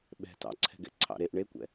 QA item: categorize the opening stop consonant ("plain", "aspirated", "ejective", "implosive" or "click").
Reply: implosive